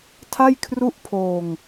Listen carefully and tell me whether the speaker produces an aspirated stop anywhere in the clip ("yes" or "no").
yes